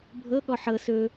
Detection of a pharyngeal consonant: present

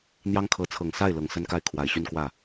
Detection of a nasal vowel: absent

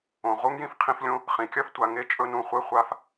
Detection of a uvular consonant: present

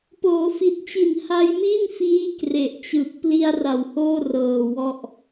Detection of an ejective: absent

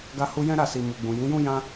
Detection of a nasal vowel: present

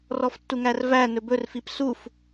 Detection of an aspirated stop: absent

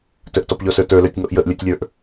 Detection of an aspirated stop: absent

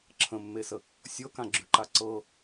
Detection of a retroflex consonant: absent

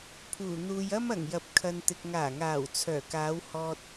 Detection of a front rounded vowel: present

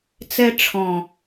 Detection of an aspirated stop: present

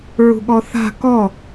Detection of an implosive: present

